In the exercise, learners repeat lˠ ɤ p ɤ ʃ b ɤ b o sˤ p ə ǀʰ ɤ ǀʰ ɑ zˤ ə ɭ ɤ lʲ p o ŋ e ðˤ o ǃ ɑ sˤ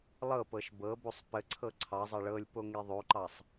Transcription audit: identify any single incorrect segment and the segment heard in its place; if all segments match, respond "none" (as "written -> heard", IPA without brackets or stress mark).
none